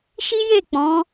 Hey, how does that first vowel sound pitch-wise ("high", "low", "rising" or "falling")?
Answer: high